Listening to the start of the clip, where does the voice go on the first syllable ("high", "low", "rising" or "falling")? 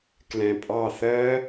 low